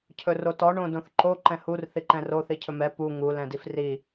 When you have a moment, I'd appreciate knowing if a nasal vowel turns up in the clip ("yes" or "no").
yes